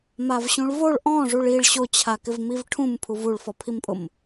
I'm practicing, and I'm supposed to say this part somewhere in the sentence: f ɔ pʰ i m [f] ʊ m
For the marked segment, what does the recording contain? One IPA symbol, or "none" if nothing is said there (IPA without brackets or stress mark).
pʼ